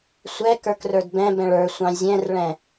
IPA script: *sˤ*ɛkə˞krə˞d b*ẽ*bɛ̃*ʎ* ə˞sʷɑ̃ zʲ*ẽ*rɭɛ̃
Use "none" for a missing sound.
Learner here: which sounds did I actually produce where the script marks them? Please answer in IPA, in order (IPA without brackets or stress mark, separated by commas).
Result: sʷ, ɛ̃, ɭ, ɛ̃